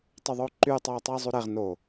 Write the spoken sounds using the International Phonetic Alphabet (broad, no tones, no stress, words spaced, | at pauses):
tˤyðˤoǃy tˤoːtˤiːzˤuɾeʁ no